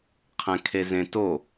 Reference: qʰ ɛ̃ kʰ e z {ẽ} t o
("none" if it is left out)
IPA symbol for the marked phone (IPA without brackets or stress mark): ẽ